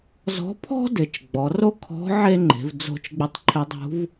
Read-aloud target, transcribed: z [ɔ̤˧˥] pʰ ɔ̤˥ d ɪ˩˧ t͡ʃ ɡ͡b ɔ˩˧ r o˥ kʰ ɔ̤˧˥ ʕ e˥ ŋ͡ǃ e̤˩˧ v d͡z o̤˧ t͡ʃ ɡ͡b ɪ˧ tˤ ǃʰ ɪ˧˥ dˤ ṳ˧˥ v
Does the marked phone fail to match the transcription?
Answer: no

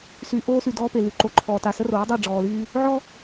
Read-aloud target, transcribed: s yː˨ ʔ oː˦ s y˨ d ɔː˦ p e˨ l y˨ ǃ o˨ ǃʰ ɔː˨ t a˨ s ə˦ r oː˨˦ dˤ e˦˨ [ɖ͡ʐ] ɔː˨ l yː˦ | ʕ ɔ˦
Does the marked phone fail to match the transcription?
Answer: no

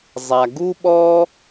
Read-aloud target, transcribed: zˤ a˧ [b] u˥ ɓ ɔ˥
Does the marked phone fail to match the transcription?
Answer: yes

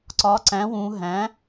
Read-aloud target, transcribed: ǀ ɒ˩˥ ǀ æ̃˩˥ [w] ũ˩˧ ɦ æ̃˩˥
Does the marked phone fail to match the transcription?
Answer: no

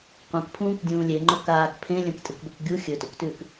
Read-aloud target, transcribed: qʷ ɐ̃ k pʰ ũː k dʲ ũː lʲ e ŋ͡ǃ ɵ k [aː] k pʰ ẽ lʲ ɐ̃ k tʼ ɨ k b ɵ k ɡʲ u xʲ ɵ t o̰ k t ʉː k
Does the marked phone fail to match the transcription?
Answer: no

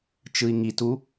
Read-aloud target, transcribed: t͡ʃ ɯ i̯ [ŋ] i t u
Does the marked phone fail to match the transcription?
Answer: no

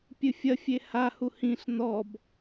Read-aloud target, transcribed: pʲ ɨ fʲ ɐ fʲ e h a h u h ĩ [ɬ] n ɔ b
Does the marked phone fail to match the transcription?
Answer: no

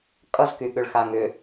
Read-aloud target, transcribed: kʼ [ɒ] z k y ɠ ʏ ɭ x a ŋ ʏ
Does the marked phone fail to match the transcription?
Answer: yes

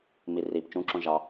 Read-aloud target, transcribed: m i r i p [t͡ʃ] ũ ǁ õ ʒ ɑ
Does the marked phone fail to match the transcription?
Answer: no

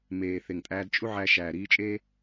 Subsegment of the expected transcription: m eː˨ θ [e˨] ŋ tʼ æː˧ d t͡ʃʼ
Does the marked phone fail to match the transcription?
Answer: no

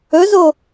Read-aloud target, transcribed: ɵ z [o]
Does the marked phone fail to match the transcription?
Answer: no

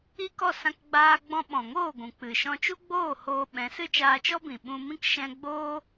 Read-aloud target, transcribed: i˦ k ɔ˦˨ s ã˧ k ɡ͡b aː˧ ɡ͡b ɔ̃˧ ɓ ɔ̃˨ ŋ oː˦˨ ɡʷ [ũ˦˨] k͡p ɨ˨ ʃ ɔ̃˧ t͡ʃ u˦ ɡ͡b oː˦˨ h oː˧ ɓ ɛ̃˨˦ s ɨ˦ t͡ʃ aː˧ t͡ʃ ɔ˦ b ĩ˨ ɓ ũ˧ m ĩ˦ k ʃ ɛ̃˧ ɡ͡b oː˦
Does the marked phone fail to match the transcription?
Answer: yes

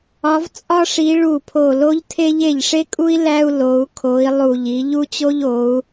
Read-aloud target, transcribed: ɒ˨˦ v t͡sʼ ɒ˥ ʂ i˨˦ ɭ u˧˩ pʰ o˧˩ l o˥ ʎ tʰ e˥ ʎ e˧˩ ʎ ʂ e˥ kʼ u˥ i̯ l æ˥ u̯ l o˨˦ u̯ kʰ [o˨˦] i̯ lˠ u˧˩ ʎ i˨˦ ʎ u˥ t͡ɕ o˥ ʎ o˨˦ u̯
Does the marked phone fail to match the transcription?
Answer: no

